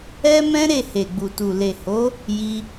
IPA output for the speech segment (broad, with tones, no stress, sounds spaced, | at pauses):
ɛ˦ m ɛ̃˦ ɾ e˦˨ h e˨ ɡ͡b u˨ t u˨ l e˨ h o˨˦ | j i˧